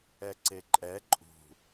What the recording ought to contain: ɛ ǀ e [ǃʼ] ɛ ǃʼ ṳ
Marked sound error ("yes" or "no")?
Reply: no